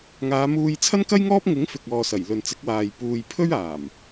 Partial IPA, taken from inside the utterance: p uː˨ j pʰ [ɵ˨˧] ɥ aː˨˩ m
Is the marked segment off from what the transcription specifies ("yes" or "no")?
yes